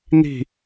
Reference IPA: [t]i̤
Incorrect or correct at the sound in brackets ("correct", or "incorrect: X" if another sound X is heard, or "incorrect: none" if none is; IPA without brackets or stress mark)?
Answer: incorrect: n̪